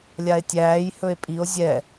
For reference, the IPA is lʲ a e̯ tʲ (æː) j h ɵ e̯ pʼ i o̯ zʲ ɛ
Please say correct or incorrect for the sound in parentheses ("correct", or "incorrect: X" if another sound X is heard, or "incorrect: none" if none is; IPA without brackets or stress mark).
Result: correct